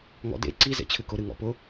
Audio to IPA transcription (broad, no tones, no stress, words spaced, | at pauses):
ŋɔ̰dḛ ǀi zḛt͡ɕʰɨkʊ ɾɨŋɔ̰pʊ